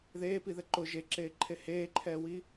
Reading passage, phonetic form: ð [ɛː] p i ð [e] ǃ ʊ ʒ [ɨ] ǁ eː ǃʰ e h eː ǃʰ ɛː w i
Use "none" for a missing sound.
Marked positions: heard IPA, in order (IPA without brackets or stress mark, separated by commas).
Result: eː, ɛ, e